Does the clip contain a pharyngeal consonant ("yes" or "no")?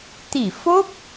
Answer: no